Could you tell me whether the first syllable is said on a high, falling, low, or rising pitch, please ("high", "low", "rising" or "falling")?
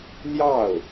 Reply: falling